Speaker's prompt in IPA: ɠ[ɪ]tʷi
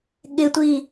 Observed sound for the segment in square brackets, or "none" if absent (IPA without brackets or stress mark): ɪ